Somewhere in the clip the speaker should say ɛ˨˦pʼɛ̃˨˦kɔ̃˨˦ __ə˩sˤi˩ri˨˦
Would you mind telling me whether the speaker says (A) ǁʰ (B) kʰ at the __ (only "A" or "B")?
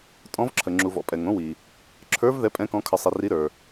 B